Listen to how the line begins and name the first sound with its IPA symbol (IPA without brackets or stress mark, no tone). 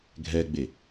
ɡʱ